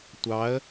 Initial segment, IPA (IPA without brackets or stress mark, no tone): tʷ